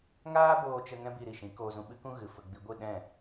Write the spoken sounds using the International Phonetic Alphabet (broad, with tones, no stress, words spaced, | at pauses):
ŋaː˦boː˧t͡ʃə˧ ŋɛ̃˦bi˧ɾi˨ʃĩ˨˦ koː˧zũ˧ɓɨ˦kũ˦ ɣɨ˨fə˧ɡ͡bi˧ ɡʷɨ˦˨ ɗɛ̃˦˨